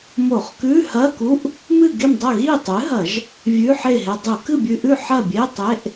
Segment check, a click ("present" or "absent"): absent